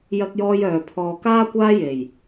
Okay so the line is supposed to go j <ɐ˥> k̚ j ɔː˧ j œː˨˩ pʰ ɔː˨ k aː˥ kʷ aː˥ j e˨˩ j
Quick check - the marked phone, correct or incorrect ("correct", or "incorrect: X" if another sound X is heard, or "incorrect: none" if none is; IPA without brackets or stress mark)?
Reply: incorrect: ɐ˧